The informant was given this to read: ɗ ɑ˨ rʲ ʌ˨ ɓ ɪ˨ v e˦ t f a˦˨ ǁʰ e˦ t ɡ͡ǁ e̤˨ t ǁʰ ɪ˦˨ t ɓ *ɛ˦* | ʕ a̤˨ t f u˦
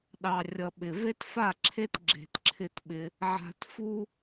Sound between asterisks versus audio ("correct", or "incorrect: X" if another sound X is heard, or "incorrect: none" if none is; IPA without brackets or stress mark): incorrect: ɪ˦